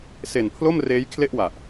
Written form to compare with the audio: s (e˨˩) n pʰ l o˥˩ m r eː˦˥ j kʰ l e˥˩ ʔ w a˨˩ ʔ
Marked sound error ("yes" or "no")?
no